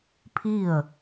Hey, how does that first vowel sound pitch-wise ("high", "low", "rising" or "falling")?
falling